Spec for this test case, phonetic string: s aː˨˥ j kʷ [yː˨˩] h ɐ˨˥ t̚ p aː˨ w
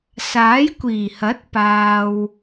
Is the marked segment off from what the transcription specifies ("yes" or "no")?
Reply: yes